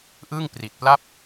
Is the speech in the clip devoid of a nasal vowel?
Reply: yes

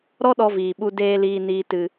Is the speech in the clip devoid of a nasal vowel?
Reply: yes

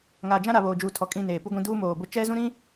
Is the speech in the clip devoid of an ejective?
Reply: no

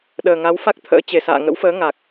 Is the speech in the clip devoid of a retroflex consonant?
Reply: yes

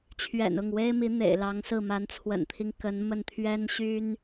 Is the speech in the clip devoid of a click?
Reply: yes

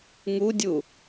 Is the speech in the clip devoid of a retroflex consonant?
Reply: yes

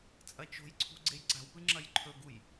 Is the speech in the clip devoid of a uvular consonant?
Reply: yes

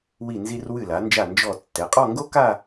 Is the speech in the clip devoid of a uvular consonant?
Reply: no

